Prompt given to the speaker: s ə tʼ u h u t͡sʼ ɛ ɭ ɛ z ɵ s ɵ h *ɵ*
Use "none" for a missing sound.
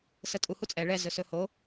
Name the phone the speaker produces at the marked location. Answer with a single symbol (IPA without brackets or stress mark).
o